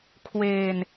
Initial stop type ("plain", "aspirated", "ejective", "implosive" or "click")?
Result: aspirated